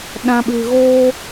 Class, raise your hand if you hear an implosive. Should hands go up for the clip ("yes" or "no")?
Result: yes